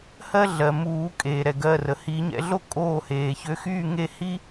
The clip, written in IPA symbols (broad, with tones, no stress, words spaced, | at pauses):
hɜ˥ ɮɜ˩muː˨˩˦ kʼeː˩ɾɛ˩ ɡɜ˩˧˩rə˩ hiː˨˩˦ɲɛ̰˨˩˦ɮo˥˨ kʼoː˥˨ heː˩çø˨˦xyː˥˨ ŋe˥˨hi˥